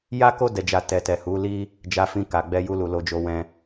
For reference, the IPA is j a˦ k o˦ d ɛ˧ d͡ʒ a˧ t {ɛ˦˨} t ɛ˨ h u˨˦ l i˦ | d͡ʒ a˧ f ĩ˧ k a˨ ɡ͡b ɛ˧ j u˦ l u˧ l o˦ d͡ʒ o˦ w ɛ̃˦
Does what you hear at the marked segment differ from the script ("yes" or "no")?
yes